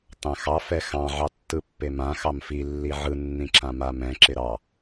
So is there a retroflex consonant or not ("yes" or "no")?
no